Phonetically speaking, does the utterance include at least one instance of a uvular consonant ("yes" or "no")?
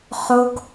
yes